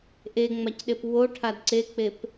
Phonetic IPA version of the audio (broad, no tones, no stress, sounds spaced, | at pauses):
ʔ e ŋ͡m a c ɗ e p w o ʈʰ a d ǀ e k͡p e p